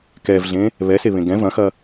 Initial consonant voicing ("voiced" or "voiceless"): voiceless